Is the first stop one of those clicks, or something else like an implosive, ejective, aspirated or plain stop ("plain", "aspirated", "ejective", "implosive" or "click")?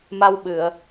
implosive